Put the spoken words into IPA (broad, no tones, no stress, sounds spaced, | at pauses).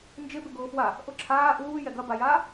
n d͡ʒ ɪ b ɪ ɡ ʊː f w a | ʔ ʊ ǁʰ aː ʔ uː j ɛ ɡ ɐ b a j aː